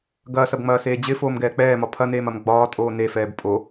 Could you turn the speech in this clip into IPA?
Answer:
ɡ ɐ s ɐ b ŋ͡m ɐː s eː d͡ʑ ɪ f oː m ɡ ɛː k͡p ɛː m ɒ pʰ ɐ n eː m ɐ m ɡ͡b ɒː tʼ oː n e f ɛː b pʼ o

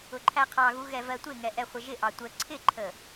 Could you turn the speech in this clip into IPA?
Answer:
ʊ ǃʰ æ qʰ ɑ ɣ u ɣ ɛ v ɜ tʷ ɪ ŋ ɛ ʔ ɛ χʷ ɪ ʒ ɪ ʔ ɑ tʷ ə ǀʰ ɪ ǃʰ ə

